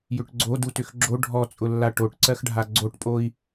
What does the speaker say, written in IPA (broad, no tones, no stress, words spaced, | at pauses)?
jʏʈɡ͡ǀo dutʏxɡ͡ǁo ɖʱɔt͡sʼʊlːa ʈoʈǀɜxɖʱa ɡ͡ǀoʈpʼoi̯